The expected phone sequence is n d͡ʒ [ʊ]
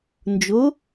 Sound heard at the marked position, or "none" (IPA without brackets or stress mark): ʊ